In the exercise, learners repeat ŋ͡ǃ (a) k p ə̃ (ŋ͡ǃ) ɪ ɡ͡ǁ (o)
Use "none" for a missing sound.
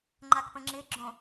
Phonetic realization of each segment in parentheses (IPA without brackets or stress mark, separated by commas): a, ŋ͡ǁ, õ